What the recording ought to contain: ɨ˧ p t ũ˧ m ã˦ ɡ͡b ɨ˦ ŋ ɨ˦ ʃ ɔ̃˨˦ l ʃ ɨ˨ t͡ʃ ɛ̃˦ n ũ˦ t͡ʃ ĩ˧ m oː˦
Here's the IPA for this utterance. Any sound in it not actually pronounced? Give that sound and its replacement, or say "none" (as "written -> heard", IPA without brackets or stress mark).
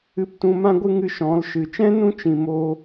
ɡ͡b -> ɡʷ